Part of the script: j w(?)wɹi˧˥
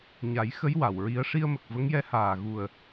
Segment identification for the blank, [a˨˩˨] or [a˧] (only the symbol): a˨˩˨